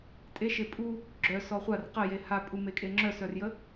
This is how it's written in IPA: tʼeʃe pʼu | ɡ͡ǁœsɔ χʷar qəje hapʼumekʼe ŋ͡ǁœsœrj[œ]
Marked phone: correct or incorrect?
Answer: incorrect: ə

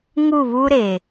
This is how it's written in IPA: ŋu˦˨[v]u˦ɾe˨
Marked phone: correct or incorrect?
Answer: incorrect: β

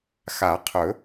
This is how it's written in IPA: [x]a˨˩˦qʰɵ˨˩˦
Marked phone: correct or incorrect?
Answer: correct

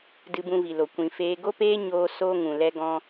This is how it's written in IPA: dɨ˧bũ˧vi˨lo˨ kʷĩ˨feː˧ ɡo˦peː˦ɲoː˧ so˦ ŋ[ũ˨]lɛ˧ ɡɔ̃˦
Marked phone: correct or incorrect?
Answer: correct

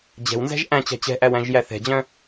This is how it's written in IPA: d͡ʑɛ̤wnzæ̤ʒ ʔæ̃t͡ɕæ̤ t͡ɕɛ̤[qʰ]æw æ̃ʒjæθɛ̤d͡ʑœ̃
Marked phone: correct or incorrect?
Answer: incorrect: ʔ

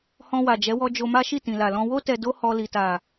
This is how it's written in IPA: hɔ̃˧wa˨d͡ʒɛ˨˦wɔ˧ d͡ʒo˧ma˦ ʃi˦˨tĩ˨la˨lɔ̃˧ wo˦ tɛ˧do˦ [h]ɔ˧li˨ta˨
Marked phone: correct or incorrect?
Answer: correct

